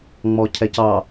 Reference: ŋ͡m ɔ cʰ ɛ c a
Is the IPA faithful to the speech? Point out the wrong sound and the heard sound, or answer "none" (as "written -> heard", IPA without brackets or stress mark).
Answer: a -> ɑ